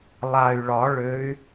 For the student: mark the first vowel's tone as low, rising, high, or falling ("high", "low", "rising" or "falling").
low